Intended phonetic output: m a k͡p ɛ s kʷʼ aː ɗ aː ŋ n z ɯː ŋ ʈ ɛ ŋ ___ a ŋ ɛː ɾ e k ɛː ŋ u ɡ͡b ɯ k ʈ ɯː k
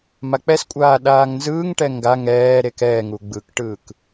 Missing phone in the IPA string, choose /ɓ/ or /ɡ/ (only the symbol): ɡ